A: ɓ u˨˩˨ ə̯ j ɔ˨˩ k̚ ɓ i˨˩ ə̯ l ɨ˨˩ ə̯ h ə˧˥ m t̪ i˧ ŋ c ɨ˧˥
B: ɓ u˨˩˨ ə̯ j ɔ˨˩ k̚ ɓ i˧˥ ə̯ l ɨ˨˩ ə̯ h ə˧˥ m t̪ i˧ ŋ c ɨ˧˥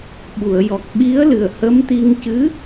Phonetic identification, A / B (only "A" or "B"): B